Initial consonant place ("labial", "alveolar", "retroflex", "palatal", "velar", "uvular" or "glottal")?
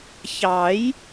palatal